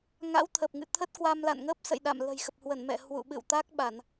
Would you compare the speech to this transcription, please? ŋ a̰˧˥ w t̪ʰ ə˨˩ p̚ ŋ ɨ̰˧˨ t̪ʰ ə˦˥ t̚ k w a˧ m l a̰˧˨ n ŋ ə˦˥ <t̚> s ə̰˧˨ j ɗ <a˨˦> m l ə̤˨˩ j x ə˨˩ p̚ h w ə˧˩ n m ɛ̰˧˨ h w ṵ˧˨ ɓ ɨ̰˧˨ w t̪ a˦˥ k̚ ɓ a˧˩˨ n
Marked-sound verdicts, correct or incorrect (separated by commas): incorrect, incorrect